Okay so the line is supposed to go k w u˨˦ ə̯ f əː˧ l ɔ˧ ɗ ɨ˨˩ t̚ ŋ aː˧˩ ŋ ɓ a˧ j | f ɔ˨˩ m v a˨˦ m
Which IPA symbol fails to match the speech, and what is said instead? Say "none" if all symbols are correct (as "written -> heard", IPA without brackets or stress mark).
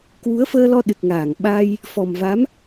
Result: none